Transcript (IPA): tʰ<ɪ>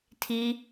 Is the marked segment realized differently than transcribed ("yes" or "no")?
yes